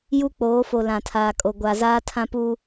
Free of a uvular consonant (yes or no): yes